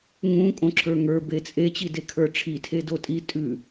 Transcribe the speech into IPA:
ŋ ũ kʼ õ ǁʰ ə˞ ŋ ə˞ b e t͡sʼ e t͡ɕ i d e kʰ ə˞ ʈ͡ʂʰ i tʰ e d o tʼ i tʼ ʉ

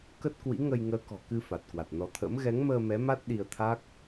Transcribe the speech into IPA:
k ə˦˥ t̚ k w ḭ˧˥ ŋ ə˧ j ŋ əː˨˦ k ɔ̤˨˩ k ɨ˧ f a˨˩ t̚ k w a˨˩ t̚ n ɔ˨˦ t̪ʰ ə̰ː˧˥ m ɣ ɛ˨˦ ŋ m əː˧ m ɛ˨˦ m a˦˥ t̚ ɗ i˧ ə̯ t̪ʰ a˦˥ k̚

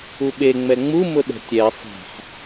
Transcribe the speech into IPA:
u ɓ e ŋ͡m ɛ ŋ͡m u m ʊ ɗ ɛ̤ tʲ ɛ sˤ ɛ̤ ħ

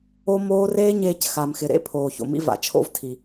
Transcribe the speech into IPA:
o˦ m oː˦ r eː˦ ɲ eː˧ c x a˨ m x ɪ˨ ɾ ḛ˦ pʰ oː˨ ç o̰˨ m ḭ˧ v a̰˨ t͡ʃʰ o̰˧ v tʰ i˨

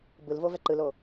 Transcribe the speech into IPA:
b ɯ l v o v ɛ ǃ ɯ l o

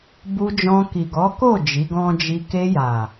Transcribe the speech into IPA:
b u˧ d͡ʒ ɔ̃˧ k i˨ ɡ ɔ˨˦ k o˦˨ d͡ʒ i˨˦ ɡ ɔ̃˦ d͡ʒ i˧ k e˧ j a˨

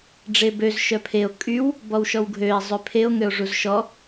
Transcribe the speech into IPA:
ɖ͡ʐ e b ø z ʃ œ pʰ e o̯ kʼ y w | b ɔ w ʃ ɔ w ɡʱ ø e̯ zˤ ø pʰ e o̯ ŋ ø o̯ ʐ u z ʃ ɔ

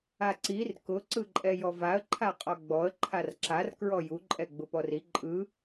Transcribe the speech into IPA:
a ǀ i r k ʊ ǀ ɯ ǃʼ ɛ j ɔ v a ə̯ ǃʰ a qʼ ɔ ɡ͡b ɔ ə̯ ǃʰ a r ǁ a r k ɹ ɔ j u ǃʼ ɛ ɡ͡b ʊ p ɔ r i ǃʼ ɯ

